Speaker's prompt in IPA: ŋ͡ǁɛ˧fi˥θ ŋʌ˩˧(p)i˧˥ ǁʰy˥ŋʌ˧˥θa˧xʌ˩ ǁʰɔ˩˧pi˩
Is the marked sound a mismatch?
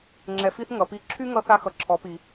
no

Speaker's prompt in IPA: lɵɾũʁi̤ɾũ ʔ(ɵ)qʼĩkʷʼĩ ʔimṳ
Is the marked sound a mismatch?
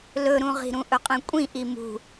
no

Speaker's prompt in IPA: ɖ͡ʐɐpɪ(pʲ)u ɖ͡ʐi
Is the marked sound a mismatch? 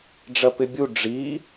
yes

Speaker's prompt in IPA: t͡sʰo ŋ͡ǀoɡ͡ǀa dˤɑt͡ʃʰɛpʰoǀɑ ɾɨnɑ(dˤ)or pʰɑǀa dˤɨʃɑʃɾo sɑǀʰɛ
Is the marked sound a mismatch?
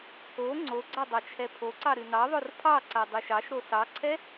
yes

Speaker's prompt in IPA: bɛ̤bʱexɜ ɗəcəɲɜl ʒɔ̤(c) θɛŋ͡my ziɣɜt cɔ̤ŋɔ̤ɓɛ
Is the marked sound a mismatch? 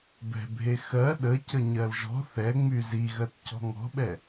yes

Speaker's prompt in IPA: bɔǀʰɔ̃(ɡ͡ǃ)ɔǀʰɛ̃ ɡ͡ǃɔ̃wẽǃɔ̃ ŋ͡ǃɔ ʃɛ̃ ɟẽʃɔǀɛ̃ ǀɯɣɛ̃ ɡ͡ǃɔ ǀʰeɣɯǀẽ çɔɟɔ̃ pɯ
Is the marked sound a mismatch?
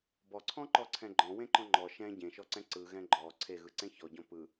yes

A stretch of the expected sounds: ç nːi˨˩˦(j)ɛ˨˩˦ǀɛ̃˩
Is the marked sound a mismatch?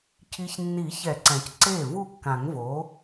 yes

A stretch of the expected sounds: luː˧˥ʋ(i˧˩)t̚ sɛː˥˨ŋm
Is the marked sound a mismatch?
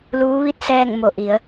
yes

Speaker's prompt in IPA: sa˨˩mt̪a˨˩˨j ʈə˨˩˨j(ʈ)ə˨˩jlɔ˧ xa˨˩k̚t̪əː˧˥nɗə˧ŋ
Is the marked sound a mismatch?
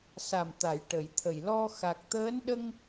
yes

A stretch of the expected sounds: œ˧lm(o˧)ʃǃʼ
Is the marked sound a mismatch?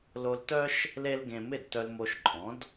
no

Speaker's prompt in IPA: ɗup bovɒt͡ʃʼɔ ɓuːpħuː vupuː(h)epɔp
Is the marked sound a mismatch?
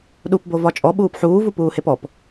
no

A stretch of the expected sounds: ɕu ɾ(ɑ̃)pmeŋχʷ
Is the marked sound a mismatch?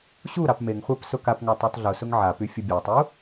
yes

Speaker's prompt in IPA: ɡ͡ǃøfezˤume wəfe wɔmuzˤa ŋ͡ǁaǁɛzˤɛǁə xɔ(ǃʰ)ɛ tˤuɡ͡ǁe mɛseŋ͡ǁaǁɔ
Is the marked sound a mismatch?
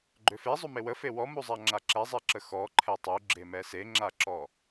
no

